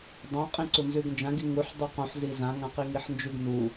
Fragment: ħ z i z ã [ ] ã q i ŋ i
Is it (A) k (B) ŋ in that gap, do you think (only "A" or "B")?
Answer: B